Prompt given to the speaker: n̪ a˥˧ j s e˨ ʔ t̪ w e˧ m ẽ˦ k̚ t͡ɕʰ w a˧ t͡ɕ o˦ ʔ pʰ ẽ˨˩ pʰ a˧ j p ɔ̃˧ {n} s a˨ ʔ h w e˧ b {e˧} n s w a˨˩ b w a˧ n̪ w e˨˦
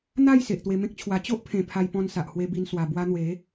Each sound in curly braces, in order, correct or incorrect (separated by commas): correct, incorrect